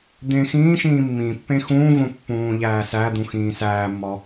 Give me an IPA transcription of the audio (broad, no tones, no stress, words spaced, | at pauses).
d̪ẽxĩːʃĩː mːĩpːẽ xũːvõ pːũːʎæːsæd̪ũ xĩːsæːmːɒ